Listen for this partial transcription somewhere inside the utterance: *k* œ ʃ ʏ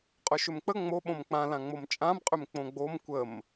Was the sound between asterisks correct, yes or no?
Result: no